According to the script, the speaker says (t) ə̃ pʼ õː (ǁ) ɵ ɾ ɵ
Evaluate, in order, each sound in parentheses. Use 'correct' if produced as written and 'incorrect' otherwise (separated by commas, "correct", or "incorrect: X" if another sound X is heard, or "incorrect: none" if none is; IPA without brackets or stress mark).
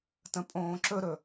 correct, correct